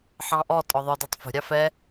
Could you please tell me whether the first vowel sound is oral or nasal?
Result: nasal